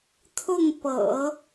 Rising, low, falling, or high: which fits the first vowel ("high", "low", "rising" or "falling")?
falling